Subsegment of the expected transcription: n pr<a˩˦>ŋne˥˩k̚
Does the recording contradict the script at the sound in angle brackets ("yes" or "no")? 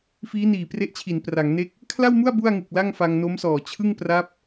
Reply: no